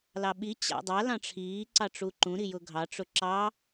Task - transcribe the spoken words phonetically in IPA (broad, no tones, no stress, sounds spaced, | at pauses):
l ɑ ɓ i t͡ɕ a̰ dˤ a l ɑ̃ ʈ͡ʂʰ iː ǀ ɑ ʈ͡ʂ u ǃ ũ ɾ i j ʊ ɡʱ ɑ ʈ͡ʂ ʊ ǁ ɑ